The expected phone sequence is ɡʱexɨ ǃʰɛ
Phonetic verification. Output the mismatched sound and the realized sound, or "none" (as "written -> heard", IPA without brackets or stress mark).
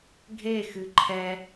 none